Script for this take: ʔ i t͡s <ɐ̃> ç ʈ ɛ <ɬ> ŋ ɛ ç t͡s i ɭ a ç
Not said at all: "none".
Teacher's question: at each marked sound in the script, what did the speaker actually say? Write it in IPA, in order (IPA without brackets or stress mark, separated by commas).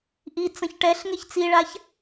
ɐ̃, ɬ